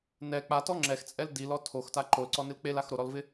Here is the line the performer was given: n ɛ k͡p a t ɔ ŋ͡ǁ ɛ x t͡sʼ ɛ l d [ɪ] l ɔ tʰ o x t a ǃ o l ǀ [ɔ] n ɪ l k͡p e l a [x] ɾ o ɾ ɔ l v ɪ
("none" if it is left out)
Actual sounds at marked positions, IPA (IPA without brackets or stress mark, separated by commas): i, ɔ, x